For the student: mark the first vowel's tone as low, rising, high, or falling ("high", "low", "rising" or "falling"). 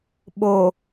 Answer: low